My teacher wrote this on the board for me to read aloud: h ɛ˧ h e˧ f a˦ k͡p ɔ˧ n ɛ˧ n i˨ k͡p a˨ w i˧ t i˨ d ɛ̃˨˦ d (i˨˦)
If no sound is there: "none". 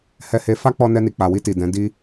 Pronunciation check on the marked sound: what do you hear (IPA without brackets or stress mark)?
i˦